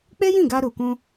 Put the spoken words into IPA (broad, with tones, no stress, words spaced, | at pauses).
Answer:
k͡pe˦jĩ˦˨ɡa˧ ɾu˨kũ˧